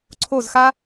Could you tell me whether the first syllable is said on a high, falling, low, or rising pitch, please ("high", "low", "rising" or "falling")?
falling